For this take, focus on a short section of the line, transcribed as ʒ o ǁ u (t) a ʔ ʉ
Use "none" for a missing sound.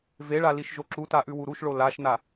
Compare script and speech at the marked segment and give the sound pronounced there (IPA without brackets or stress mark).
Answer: t